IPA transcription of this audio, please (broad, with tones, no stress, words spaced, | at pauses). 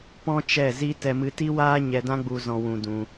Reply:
pɔ̃˦t͡ʃɛ˦˨zi˦ tɛ˧mɨ˧ti˦waː˦ ɲɛ˧dã˦ɡ͡bu˧ zɔ̃˧wũ˧dũ˧